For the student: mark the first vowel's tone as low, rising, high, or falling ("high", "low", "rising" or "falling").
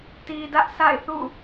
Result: low